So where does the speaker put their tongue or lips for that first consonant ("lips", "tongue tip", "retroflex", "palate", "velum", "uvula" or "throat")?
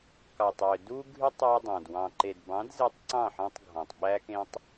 velum